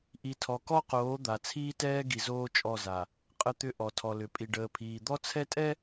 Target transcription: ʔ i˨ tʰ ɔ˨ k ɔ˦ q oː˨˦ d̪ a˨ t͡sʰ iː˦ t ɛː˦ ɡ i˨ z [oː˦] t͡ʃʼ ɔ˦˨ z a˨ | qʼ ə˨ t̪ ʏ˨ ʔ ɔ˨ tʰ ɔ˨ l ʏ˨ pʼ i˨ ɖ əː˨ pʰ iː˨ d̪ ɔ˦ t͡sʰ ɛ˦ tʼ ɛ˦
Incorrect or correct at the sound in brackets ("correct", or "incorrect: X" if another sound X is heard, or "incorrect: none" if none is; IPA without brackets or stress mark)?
correct